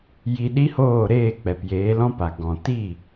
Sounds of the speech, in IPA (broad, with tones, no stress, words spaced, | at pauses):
ji˧ɗi˦hoː˦˨ɾeː˦˨ k͡pɛ˨pjeː˨˦lɔ̃˦pa˨ ɡɔ̃˨ ti˦˨